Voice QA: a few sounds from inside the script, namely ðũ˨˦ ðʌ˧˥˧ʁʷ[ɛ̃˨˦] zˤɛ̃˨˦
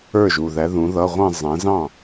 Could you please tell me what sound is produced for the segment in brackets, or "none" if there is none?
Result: ɛ̃˥˧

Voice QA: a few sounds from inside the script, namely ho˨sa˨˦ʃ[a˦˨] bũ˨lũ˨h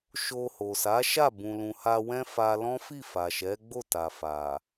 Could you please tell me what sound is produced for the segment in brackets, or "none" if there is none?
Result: a˦˨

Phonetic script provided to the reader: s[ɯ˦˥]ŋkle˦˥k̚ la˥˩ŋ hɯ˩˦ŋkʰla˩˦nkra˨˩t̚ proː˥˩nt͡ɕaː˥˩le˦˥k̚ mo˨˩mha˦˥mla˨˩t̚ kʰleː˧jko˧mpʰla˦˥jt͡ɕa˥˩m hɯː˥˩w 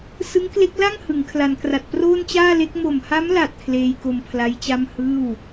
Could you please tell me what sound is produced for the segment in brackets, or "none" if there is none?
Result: ɯ˦˥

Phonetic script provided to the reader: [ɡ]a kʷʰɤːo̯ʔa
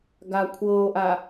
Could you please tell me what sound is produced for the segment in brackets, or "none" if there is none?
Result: ɡ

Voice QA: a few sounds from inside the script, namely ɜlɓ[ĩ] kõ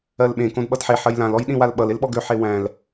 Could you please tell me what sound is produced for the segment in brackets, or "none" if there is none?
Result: ẽ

